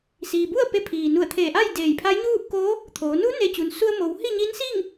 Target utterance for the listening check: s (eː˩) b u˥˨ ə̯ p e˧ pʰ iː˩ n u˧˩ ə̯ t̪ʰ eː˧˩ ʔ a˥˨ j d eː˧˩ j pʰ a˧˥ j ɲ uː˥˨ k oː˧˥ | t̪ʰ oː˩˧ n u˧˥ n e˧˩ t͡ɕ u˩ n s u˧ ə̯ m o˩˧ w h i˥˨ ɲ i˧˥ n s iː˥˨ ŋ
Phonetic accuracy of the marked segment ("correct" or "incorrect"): incorrect